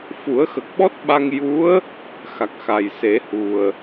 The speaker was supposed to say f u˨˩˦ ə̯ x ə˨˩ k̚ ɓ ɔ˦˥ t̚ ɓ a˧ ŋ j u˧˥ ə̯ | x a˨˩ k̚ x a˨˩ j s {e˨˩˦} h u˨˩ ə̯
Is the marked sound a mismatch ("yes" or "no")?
no